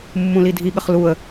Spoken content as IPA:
mː ũ l i dʱ i ɠ ə χ l u ə̯

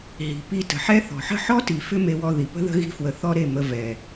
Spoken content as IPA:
ɦ i̤˨ p i˧ t ə̤˨ ħ ɛ˦ θ ɔ̤˨ ħ ə̤˦˨ ħ ɔ˦ t i˨ f ʏ˦ m e˧ w ɔ˧ ð i˨ p ə̤˦ ð ə̤˦ ɣ i̤˧ f w ə˨ θ ɔ˧ ɾ e˦˨ m ə˧ v ɛ˨

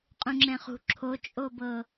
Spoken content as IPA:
qʼ ũ ŋ͡ǁ ɛ̃ χ ṳ ǁʰ o t͡ʃʼ o b ɤ

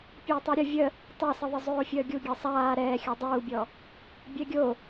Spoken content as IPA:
pʲ əː tˤ ɛ ɾʲ ə vʲ ə | tˤ a s ə ðˤ ɪ zˤ oː fʲ əː ɡʲ u ɡʲ ɛ sˤ aː ɾ ɛː xʲ ɔ dˤ uː bʲ ɔ | bʲ ɛ ɡʲ o

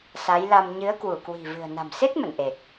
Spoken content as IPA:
s a˨˦ j l a˧ m ɲ ɨ˨˦ ə̯ k w u˧˩ k w i̤˨˩ v ɨ̤˨˩ ə̯ n a̤˨˩ m s e˦˥ t̚ m ə̰˧˨ n ʔ e˨˩ k̚

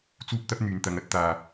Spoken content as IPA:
t͡s uː˥ p̚ t̪ ɐ˥ p̚ n̪ yː˨ n t̪ ɐ˨˧ ŋ ɐ˥ t̚ t̪ aː˨

